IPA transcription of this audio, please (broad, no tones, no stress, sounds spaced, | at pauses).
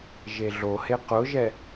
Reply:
ʒ e ɮ o h e q ʊ ʒ ɛ